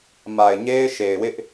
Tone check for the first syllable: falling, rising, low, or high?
low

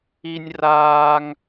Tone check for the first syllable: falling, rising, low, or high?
high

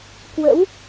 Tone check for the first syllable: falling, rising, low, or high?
rising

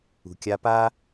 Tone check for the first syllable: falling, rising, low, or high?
low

